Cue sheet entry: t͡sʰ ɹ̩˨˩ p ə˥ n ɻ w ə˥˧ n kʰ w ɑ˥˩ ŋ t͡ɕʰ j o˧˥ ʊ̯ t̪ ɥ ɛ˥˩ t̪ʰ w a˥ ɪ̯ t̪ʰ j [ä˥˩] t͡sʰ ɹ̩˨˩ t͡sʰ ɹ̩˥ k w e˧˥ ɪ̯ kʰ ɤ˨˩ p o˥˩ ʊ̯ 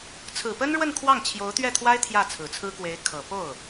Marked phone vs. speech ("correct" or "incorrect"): correct